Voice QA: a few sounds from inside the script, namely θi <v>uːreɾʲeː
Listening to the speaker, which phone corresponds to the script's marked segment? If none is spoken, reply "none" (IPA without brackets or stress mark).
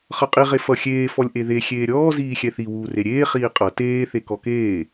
w